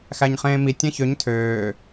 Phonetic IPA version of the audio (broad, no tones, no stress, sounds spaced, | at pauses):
x æ ɲ χ ẽː m i tʲ ɛ̃ ç ø ɲ tʰ øː